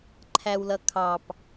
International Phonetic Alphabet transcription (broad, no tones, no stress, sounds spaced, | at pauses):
ǃʰ æ w l ʌ kʰ ɑ p